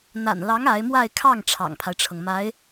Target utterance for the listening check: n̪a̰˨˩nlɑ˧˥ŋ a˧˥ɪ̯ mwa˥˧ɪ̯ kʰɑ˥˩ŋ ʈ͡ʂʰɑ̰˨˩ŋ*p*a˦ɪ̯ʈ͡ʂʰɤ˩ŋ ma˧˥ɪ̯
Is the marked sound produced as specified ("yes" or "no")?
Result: no